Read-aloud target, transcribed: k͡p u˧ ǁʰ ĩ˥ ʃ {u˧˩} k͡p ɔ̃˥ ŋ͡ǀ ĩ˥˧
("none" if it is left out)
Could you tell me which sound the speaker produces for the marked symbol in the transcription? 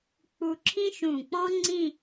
ũ˧˩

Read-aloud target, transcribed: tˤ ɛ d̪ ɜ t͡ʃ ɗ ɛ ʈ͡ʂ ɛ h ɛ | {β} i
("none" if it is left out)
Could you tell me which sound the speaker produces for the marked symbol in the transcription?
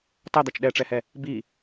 b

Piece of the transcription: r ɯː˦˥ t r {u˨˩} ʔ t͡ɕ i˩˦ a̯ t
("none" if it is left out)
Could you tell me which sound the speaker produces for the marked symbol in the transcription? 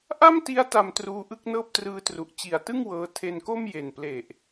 u˨˩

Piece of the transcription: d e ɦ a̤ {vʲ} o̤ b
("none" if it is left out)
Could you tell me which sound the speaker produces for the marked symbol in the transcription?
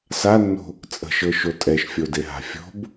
fʲ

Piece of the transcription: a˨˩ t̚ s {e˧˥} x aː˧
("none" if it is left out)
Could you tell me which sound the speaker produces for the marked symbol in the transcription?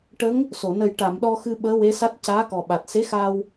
e˧˥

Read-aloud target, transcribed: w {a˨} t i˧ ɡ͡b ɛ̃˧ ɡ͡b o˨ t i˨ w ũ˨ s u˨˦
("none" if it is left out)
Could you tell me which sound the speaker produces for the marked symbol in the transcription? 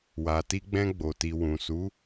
a˨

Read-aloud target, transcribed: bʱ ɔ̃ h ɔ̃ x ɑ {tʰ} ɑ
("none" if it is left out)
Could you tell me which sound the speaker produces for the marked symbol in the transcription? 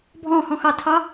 tʰ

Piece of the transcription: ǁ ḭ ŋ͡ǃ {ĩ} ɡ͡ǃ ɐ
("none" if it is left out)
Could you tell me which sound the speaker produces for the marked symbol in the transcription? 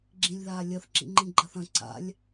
ĩ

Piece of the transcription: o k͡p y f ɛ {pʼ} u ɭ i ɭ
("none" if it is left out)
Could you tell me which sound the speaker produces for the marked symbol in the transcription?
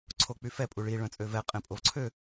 pʼ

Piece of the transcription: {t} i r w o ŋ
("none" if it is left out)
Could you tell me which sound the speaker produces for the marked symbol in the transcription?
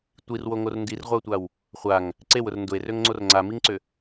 tʷ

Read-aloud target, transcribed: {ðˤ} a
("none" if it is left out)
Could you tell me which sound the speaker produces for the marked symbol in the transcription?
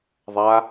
ðˤ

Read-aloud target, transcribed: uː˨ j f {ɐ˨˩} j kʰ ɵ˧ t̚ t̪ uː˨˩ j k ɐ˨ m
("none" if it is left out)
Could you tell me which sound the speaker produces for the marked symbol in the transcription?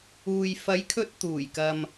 ɐ˨˥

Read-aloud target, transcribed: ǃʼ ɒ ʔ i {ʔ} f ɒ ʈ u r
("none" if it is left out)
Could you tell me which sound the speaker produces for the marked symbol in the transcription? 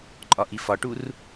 none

